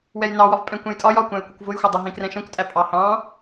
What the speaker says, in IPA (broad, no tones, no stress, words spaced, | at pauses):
wɛjnɑwɒv pʼɛ̃kʷɛ̃jtʼɒj ɒkʷæ̃ɪ̯kʷʌkʷ vʊjxʷʌdˤʌ ɦĩkrɛ̃ʃɛ̃kʷtʼæ pʼɑhɑ̃